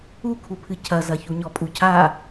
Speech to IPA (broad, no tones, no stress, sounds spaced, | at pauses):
u kʰ u pʰ ɨ cʰ ɐ z ɐ ç u ɲ ɔ pʼ u cʰ a